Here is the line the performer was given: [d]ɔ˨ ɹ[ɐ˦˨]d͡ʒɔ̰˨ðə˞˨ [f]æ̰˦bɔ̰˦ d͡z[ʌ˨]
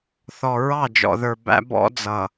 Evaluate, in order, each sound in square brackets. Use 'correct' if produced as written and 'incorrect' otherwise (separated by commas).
incorrect, incorrect, incorrect, correct